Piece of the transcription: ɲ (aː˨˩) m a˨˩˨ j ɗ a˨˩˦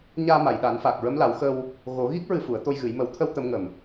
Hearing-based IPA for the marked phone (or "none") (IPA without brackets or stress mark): aː˧